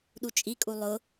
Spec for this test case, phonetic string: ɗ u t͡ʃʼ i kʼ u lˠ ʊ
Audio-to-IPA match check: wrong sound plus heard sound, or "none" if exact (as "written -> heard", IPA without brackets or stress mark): none